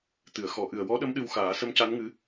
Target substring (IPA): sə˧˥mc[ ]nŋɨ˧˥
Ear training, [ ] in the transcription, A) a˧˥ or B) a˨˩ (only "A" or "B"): A